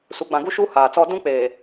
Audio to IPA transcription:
s u˨ ɡ͡b ã˨ ɡ u˦ ʃ u˦ h aː˨ t͡s ɔ˦ d ũ˦ k͡p eː˨

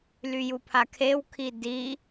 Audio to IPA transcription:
l y j u pʰ a kʰ e w kʰ i d i

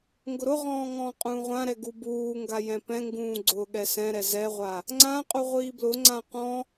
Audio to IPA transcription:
ŋ ɡ ʊ ɾ ʊ ʁ ɔ̃ː ŋ ɔ̃ː qʼ ũː ʁʷ ã ɾ ɛ ɡ u b uː ŋ ɡ a j ɛ̃ p ɛ̃ ŋ ɡ ũː ɡ͡ǀ ʊː ɠ ɛ s ɛ̃ ɾ ɛ z ɛ ʁʷ a | ŋ͡ǀ ã qʼ u ʁʷ iː b l ʊ ŋ͡ǀ ã q ɔ̃

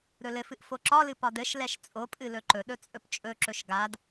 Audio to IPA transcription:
ɾ ɵ l ɘ f ɨ ʔ f o ǁ ɒ l ɨ p ɒ d ɘ ʃ l ɛ ʃ t͡sʼ o pʼ ɨ l ɵ ǃ ɵ ɗ ɵ t͡sʼ ɵ p t͡ʃʼ ɵ ǁ ɵ ʃ ɡ a d

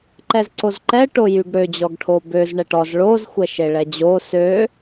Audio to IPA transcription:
ǃ ɛ z ǀ o z ǃ ɛ ʈ o j y ɡ ɽ ø d͡ʑ ɔ ɡ ʈʰ o b ø z ɳ ɛ ʈ ɔ z ɭ o z xʷ ɛ ʃ e ɭ ɛ d͡ʑ o s ø

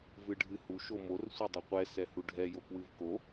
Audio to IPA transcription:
v ɨ ɖʱ ɨ h u ʃ o m o r sʷ ɛ dˤ ɛ qʷ ɛ s ɛ h u ɖʱ ɛ j o k w ɨ v k o

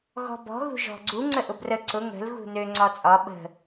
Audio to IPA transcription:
ɣ ɔ̤ b ɔ̤ ɣ ṳ ʒ ɔ̤ ɡ͡ǀ u ŋ͡ǀ ə ʔ ʊ b r ə ǀ ʊ ŋ ə̤ l ɣ ṳ n ø ŋ͡ǀ ɒ t͡sʼ ɒ ɓ ə̤

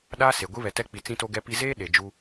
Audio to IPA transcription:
ɗ a˦ s e˨ ɡʷ i˦ β ɛ˨ t ɛ˦ k͡p i˨ t͡s ĩ˦ t o˦ ɡ ɛ˦ p i˦ z eː˦ ɗ e˨ d͡ʒ u˦

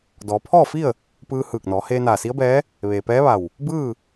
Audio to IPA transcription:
d ɔː˩˧ pʰ ɔː˥˨ f i˥˨ ə̯ | p ɯː˧ h ɯː˧˩ k̚ n ɔː˩˧ h eː˧ n aː˧˩ s i˧˥ ə̯ b ɛː˧˥ | ʋ eː˩ p ɛː˧˥ ʋ a˧˩ w | b ɯː˥˨

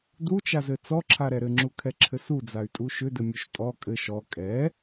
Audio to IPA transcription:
d u t͡ʃ a z ɘ t͡s ɔ ǁʰ a ɾ ɛ ɾ ɘ ŋ͡ǁ u kʰ ɛ ǁʰ ɘ s u d͡z a y̯ tʼ u ʃ ʏ d ɘ mʲ o ʃ tʼ ɔ kʼ ɘ ʃ ɔ kʼ ɛ

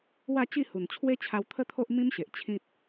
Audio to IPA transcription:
w a˥˧ t͡ɕ i˥˧ h u˨˩ n t͡ɕʰ w e˦ t͡ɕʰ a˧ w t̪ʰ ə˦ t̪ʰ o˦ ʔ m ĩ˦ m ɕ e˨ ʔ t͡ɕʰ ĩ˦ t̚

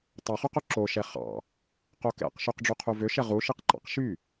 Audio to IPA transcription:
tˤ ɵ χ ʉ q ɵ ǁ o ʃ ɛ χ ɑ̰ | q o k ɛ̰ q ʃ y q ɖ͡ʐ u qʰ u v ø ʃ ɛ ʁ u ʃ i q ǃ ɑ̰ q ʃ y

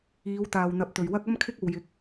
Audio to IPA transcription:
iː˨˧ w t̪ aː˨ w n̪ ɐ˨ p̚ t̪ ɵ˨˩ ɥ w ɐ˥ k̚ ɐ˥ m kʰ ɪ˥ k̚ o˨ w j ɪ˨˥ k̚

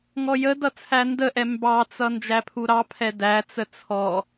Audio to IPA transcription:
ŋ ɔ j ə d ʌ t͡sʰ æ n d ə ʔ ɛ m b ɑ t͡s ʌ n d͡ʒ æ pʰ u ɾ ɑ pʰ ɛ d æ t͡s ə t͡sʰ ɔ

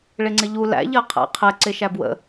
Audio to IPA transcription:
ɭ ɪ ŋ͡ǀ ɪ ʎ u l æ̰ ʎ ɜ qʰ æ̰ qʰ ɛ ǀ ɪ ʃ æ b w ə̰

